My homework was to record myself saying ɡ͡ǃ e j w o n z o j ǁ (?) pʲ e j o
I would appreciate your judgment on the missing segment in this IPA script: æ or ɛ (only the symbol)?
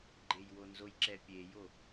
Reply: ɛ